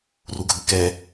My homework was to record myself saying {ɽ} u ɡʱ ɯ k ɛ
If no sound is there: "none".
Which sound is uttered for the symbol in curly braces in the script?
r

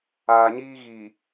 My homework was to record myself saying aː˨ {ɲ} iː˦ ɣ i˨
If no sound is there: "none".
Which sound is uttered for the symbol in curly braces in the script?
ɲ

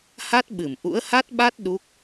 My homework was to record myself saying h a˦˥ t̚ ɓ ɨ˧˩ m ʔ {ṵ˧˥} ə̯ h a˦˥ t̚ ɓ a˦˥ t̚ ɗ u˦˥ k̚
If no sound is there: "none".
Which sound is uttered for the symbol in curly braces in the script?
ṵ˧˥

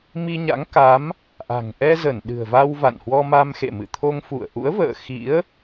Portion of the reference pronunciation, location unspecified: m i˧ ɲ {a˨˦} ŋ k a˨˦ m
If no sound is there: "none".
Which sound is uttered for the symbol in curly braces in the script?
a̰˧˥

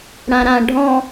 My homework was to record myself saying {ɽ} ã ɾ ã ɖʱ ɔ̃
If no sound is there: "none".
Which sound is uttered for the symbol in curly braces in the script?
ɽ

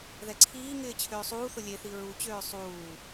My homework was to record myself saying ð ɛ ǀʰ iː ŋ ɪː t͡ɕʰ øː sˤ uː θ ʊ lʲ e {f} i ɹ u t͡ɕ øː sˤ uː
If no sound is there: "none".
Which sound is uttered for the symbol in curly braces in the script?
θ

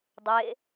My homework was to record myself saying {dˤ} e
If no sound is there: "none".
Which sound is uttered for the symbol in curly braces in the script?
dˤ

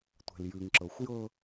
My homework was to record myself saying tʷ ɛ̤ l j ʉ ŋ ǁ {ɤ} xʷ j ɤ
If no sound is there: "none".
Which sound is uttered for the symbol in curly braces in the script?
ɤ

